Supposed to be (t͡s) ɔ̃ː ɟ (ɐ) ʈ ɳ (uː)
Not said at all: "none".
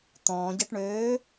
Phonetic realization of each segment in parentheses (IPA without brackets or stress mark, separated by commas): t̪, ɐ, øː